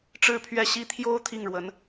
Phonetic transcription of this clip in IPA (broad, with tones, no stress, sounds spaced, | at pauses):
ʈ͡ʂ ɻ̩˥˧ pʰ ɥ ɛ˥˩ ɕ i˥ t̪ʰ j o˥ ʊ̯ t̪ʰ i˥˩ ŋ ɻ w ə˧˥ n